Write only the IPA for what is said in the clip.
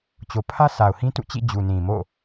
t͡ɕ o˨ pʰ ä˦ s a˨ ʊ̯ h ĩ˦ t ṵ˦˨ t͡ɕ ḭ˦˨ d͡ʑ u˨ n ĩ˨ m o̰˦˨

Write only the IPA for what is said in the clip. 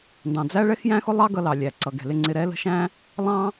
n d ɑ̃˨ d͡z æ˦ ɭ ɛ˦ x j æ̃˦ x ʊ˦ lˠ ɑ˦ ɡ ʌ˧ l ɑ˨ lʲ æ˨ ǀ ʌ˨ ɡ ɛ̤˨ l ɪ˧ ŋ͡ǀ ɪ˧ ɾ ɛ˦ l ə̤˦ ʃ æ̃˦ | lˠ ɑ̃˦

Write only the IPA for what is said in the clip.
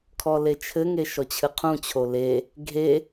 kʰ ɔ l e t͡ʃʰ ɘ ŋ e ʃ ɔ t͡ɕʰ ɨ qʰ ũ t͡ɕʰ o l e | ɡʱ e

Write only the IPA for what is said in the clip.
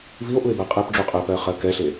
v i o̯ ʔ u e̯ b ɜ qʼ ɛ p ɖ͡ʐ u qʼ ɜ p ɜ χ ɜ k ɛ ɬ e

